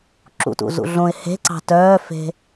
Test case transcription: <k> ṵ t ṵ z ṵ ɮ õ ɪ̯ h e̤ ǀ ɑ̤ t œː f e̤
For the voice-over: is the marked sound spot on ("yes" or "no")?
no